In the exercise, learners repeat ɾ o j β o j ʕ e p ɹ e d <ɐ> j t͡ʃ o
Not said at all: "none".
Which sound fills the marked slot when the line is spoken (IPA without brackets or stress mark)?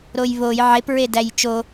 æ